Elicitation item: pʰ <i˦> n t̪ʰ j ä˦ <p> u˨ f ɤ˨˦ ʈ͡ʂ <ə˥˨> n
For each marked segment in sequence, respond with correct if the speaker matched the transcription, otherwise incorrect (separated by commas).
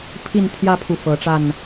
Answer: incorrect, incorrect, incorrect